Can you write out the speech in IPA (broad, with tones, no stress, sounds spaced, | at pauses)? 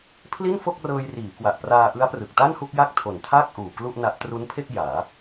pʰ l i˥˩ n f o˥˩ k̚ r ɤː˧ j r iː˩˦ k w a˨˩ ʔ p r aː˧ ʔ ɯ˦˥ a̯ p r ɯ˨˩ k̚ t a˥˩ n h u˥˩ k̚ j a˥˩ k̚ tʰ o˨˩ n tʰ aː˥˩ k̚ ʔ uː˨˩ k l u˥˩ ʔ n a˦˥ ʔ t r u˦˥ n pʰ e˥˩ k̚ j aː˩˦